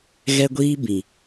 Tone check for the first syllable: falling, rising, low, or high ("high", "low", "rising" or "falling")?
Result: high